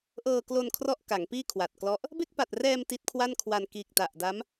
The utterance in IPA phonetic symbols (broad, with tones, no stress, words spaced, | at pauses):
ʔɤː˧klo˧n kʰrɔ˥˩ʔka˩˦ŋpiː˥˩kʰwa˨˩t̚ klɔ˦˥ʔ | be˥˩k̚pa˨˩t̚rɛː˧m ti˦˥t̚kʰwa˥˩nkʰwa˧n kiː˨˩k̚ta˨˩ʔ da˦˥m